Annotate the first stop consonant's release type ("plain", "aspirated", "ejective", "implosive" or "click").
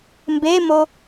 plain